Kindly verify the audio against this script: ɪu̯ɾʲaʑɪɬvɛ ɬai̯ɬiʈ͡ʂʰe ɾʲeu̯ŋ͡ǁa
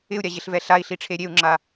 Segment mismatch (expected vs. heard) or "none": none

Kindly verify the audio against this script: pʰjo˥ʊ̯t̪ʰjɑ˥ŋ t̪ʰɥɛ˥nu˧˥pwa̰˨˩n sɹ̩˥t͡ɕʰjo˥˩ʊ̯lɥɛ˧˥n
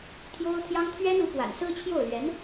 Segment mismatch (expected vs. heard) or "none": pʰ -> t̪ʰ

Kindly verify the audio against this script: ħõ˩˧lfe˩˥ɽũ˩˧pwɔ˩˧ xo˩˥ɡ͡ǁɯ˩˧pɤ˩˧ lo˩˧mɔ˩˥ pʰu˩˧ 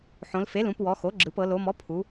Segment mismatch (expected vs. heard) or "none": ɽ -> l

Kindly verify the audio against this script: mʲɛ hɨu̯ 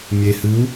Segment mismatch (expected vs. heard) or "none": ɛ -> e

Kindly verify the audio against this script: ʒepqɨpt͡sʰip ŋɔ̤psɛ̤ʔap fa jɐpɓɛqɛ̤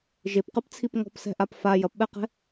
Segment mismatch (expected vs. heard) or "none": none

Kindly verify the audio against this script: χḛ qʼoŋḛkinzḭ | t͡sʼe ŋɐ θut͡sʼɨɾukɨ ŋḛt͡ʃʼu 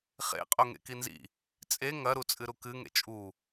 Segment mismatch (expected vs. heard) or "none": θ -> ɾ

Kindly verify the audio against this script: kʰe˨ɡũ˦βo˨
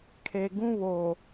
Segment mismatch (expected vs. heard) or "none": none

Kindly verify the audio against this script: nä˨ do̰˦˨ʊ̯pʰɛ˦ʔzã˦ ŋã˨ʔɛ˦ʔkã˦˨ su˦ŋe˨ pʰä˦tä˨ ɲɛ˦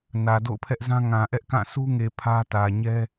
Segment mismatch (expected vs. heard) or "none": none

